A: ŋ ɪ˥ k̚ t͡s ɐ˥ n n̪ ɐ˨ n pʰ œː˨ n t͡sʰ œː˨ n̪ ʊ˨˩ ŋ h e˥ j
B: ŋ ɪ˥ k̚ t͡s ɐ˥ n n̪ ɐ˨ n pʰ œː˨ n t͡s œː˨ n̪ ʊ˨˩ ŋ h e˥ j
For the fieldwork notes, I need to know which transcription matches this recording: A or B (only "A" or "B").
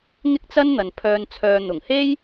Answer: A